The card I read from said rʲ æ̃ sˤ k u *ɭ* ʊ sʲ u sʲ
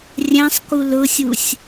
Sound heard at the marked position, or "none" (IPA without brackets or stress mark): l